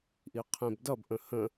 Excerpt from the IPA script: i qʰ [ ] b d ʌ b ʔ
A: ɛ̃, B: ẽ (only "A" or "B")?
B